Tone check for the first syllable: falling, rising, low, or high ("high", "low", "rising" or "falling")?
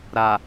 low